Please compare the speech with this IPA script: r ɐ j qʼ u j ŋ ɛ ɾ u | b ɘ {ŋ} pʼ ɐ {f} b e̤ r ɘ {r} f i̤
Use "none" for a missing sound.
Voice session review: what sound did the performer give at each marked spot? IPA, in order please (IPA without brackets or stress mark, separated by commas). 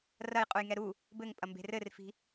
ŋ, m, r